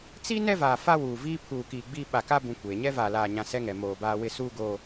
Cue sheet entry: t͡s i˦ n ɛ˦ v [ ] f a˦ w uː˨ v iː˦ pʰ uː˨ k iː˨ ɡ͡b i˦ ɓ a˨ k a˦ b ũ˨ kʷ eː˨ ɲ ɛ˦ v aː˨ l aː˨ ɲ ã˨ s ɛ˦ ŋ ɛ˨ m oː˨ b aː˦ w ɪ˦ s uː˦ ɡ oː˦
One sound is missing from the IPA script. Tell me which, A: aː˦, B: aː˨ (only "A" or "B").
B